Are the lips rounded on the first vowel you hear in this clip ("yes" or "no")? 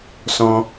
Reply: yes